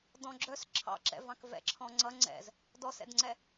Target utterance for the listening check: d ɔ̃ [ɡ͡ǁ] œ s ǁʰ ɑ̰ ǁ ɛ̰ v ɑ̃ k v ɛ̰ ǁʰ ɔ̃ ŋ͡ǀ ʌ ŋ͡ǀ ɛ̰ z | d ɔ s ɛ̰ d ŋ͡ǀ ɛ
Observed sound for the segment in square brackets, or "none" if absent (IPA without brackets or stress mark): ɡ͡ǁ